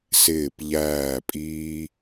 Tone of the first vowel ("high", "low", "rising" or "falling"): low